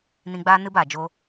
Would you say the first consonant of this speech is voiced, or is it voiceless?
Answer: voiced